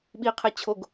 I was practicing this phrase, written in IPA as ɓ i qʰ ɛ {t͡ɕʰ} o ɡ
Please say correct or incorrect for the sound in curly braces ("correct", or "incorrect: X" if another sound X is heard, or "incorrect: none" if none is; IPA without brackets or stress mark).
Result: correct